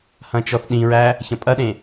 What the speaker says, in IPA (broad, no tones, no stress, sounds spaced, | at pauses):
h ɐ̃ t͡ʃ ɔ θ ɗ ĩ ɹ æ | ç ɐ̃ pʼ ɐ ɗ ẽ